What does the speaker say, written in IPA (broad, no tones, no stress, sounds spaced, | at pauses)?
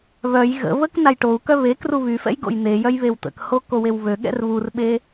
β œ j ɣ ə̰ β ə k n a j ʈ o u̯ k œ β e k r u β y f ɛ̰ j ɡ o̰ j n̪ e j œ j β e w t̪ ə̰ k h o k o w e w β ø ɠ ɛ̰ r β u r ɓ e